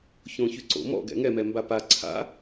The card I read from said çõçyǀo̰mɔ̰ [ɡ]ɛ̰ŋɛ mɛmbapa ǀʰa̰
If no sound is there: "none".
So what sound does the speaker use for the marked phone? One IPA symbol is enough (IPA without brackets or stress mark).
ɡ